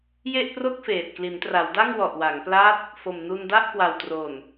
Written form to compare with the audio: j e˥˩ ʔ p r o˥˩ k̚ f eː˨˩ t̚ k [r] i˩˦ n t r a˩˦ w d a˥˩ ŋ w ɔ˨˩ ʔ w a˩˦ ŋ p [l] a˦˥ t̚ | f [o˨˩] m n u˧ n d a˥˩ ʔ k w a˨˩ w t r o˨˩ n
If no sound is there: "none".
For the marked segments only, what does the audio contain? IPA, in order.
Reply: l, l, o˨˩

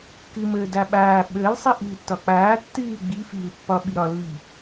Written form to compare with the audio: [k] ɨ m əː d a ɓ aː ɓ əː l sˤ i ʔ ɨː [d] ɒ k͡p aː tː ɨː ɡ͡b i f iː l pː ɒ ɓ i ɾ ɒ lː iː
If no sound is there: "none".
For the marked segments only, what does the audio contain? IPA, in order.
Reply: k, tː

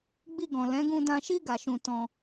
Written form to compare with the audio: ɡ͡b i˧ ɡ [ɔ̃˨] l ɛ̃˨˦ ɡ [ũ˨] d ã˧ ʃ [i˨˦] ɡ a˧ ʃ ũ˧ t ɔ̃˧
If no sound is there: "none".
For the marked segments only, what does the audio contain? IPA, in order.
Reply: ɔ̃˨, ũ˧, i˦

